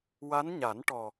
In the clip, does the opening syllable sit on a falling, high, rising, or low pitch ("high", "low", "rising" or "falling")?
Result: rising